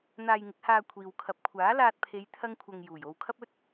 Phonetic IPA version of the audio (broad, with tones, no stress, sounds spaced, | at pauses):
n̪ aː˧ j ŋ ɪ˨˥ k̚ h aː˧ kʷʰ iː˨ w kʰ ɐ˨˥ p̚ kʷʰ aː˨˥ l aː˧ t̚ pʰ e˨˧ j t̪ʰ ɐ˥ ŋ kʷʰ ɐ˧ ŋ j uː˨˩ j o˧ w kʰ ɐ˥ p̚ ɵ˥ t̚